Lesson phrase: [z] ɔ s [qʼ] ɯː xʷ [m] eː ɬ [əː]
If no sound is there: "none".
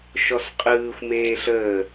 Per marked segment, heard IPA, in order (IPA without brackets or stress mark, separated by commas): ʃ, qʼ, m, əː